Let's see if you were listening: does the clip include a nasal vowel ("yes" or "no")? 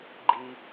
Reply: no